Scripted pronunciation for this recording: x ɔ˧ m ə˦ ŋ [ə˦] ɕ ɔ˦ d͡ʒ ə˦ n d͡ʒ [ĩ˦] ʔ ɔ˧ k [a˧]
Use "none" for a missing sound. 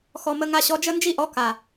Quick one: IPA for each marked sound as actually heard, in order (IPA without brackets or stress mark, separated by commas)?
a˦, i˦, a˨